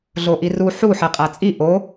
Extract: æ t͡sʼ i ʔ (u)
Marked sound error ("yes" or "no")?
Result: yes